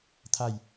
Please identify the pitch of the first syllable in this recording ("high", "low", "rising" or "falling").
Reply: falling